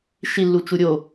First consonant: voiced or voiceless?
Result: voiceless